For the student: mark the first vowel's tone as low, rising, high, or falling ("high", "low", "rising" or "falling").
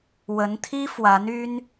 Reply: rising